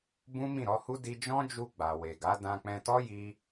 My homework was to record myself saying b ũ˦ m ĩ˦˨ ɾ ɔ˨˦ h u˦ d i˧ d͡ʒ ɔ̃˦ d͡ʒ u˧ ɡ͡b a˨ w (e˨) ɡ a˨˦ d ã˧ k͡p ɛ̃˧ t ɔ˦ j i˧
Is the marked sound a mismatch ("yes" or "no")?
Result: no